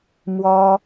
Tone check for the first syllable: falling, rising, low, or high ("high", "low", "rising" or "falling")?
high